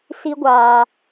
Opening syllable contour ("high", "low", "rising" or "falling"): high